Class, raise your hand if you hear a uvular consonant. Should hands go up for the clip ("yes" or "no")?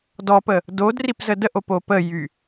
no